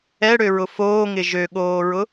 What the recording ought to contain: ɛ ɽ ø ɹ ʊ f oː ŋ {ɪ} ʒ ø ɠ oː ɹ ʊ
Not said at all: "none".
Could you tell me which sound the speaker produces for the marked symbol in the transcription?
ɪ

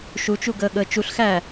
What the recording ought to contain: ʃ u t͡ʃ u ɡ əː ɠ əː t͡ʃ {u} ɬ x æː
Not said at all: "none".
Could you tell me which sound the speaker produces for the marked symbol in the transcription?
u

